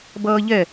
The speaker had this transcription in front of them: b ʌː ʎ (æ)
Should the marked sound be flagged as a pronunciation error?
yes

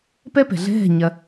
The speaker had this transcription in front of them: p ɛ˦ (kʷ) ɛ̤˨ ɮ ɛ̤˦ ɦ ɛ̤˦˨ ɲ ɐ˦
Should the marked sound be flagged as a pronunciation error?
yes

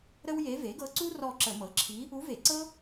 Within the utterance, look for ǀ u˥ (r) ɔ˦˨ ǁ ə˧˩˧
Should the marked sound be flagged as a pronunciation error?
no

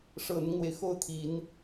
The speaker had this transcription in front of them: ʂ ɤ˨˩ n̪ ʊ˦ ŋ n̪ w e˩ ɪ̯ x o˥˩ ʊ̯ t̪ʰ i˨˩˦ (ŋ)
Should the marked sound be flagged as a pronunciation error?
yes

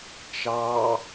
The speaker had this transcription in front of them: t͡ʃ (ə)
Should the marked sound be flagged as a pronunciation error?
yes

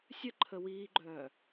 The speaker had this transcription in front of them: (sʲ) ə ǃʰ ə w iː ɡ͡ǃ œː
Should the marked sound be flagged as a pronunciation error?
no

